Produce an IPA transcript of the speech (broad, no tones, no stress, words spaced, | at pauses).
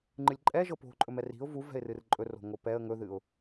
ŋ͡ǃɨlʲǃʼɛʒɤ po̤ǃʼɵmɛ ri̤ʊ̯ vu vɛ̤ɪ̯rɨrǃʼɵr o̤ŋopɛə̯ ŋɵðɨʊ̯